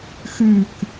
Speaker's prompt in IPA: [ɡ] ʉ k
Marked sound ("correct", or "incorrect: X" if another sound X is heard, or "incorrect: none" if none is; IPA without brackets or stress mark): incorrect: x